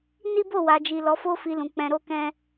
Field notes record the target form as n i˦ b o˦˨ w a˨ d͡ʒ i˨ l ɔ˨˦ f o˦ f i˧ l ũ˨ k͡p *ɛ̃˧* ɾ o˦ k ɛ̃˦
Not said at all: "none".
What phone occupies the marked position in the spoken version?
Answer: ɛ̃˧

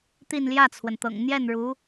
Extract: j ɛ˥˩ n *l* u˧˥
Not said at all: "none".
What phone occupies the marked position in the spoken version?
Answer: ɻ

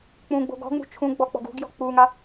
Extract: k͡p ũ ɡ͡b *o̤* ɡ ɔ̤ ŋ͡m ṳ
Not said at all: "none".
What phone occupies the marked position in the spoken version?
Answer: o̤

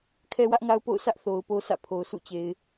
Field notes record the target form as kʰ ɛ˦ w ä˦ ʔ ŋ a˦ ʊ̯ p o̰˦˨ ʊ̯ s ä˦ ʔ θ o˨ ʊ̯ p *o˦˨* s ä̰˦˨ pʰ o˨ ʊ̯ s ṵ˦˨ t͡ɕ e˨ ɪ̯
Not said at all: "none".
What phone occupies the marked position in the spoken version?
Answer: o˦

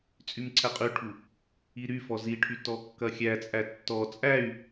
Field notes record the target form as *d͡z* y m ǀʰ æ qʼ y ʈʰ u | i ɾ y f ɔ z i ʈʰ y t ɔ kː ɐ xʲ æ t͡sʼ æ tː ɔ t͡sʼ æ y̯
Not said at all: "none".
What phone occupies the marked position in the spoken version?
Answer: t͡sʼ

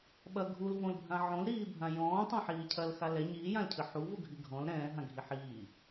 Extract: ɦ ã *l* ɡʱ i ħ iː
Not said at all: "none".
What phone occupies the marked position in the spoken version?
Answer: none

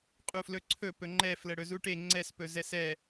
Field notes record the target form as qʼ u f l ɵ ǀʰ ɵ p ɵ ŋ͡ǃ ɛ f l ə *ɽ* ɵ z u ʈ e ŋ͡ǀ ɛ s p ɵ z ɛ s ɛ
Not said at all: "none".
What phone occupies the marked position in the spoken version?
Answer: ɽ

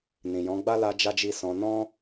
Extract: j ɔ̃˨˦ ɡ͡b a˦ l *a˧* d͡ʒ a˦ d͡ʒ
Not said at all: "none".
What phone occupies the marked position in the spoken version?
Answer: a˧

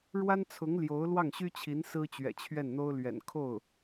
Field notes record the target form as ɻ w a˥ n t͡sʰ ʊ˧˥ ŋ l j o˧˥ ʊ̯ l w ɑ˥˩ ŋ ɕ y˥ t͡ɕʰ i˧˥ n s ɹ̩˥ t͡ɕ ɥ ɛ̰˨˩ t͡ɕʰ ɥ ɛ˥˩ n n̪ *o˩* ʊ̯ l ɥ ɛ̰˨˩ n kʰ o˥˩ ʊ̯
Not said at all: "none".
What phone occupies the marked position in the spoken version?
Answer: o˥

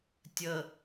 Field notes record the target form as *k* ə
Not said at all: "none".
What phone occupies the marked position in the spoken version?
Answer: tʲ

